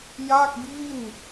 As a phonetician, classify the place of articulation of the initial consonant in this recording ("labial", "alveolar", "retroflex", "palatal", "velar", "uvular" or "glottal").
palatal